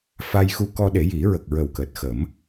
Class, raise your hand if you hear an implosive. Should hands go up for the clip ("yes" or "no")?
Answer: yes